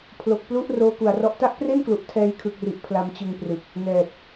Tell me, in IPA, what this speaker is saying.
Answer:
pʰ l o˨˩ k̚ p l u˦˥ ʔ r oː˦˥ k u˨˩ a̯ r ɔ˦˥ ʔ t a˦˥ ʔ p r e˥˩ n k l u˨˩ ʔ tʰ ɛː˧ j kʰ ɯ˨˩ k̚ r i˨˩ ʔ pʰ l a˧ m t͡ɕ ɯ˧ ŋ p r ɯ˨˩ k̚ | n ɛː˨˩ p̚

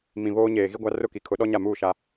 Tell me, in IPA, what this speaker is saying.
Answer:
m ĩ˨ β oː˦ ɲ eː˨ ɣ i˦ ɡʷ a˦ r ʊ˦˨ k i˨ kʰ ʊ˨˦ ɗ ɔ˦ ɲ a˦˨ m uː˦˨ ʃ a˦

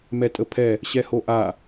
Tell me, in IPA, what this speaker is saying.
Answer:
m ɛ tʼ ə pʰ ɛ | ɕ ɛ h o ʔ a

